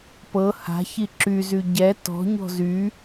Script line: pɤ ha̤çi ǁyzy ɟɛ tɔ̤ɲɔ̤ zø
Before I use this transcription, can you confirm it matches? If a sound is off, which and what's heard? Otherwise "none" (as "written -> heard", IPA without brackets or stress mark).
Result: ø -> y